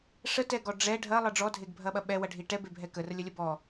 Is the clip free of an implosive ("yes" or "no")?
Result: no